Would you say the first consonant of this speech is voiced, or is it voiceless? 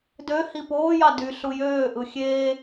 voiced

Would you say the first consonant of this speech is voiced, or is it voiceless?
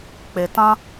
voiceless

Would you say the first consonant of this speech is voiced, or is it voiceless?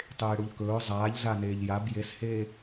voiceless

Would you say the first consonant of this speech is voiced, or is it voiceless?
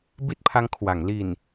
voiced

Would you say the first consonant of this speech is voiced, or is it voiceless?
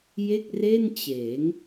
voiced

